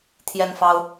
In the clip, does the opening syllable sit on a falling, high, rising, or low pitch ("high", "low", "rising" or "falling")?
high